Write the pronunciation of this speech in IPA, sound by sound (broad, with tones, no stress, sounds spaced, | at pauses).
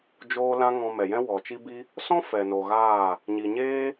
d͡ʒ oː˧ l ã˧ ŋ ɔ̃˨ m ɛ˨ j ɛ̃˦ w ɔ˨ t͡ʃ i˦ b i˦ | s ɔ̃˦ f ɛ˨ n o˨ ɣ aː˦˨ | ɲ i˨ ɲ eː˦